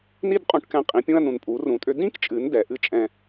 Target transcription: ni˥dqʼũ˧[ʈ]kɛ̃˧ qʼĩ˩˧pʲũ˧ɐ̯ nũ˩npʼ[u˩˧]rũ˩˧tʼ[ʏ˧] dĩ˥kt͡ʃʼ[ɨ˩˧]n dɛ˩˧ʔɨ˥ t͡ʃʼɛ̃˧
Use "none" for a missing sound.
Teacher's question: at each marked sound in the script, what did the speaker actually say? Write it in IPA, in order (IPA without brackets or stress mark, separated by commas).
ʈ, u˩˧, ʏ˧, ɨ˩˧